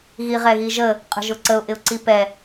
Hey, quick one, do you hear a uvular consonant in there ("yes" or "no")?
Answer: yes